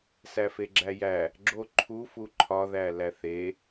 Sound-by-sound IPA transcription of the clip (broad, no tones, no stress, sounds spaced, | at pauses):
s æ f e ɡ͡ǁ æ j æ | ɡ͡ǁ o ǃʰ u f u ǃʰ ɒ ð æ l æ θ e